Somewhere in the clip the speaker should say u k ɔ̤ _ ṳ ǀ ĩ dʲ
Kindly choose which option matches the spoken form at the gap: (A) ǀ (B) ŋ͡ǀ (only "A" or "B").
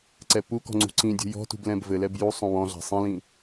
B